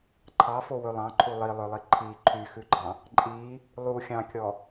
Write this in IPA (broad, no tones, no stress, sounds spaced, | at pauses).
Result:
ǃʰ ɑ f o w ɵ lˠ ɑ̃ ǃʰ u lˠ i lˠ œ lˠ i ǃʰ i ǃʰ y x ʉ ɡ͡ǃ ɑ̃ | ǃʼ i | lˠ u xʲ ɑ̃ kʲ ɔ